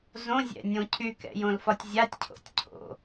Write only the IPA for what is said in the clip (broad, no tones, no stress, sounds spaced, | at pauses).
z õ zʲ ɛ̰ nʲ õ cʰ y k ɛ̰ j õ l f ɒ tʲ zʲ a tʲ cʰ o̰ tʲ cʰ o̰